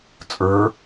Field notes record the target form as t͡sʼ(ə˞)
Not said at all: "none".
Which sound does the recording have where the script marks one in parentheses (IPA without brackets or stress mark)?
ə˞